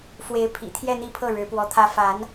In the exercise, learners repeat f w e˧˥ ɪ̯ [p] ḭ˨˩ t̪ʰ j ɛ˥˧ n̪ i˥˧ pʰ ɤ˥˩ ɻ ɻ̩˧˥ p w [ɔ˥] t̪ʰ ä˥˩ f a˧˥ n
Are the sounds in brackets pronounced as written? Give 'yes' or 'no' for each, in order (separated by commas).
no, no